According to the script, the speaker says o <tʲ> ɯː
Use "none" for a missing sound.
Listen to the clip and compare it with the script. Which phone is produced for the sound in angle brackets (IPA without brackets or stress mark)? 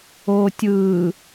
tʲ